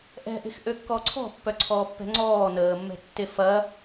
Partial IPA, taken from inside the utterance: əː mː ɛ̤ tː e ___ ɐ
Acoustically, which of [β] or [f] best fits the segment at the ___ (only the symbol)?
f